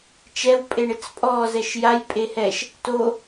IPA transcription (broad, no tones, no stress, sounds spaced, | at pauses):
t͡ʃ ɛ w pʼ e ɳ ɪ t͡s pʼ ɔ z ɛ ʃ j a j pʼ e h ɛ ʃ | t o